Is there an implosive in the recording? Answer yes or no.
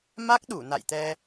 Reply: yes